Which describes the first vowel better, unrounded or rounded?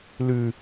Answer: rounded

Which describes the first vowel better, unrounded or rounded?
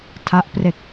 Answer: unrounded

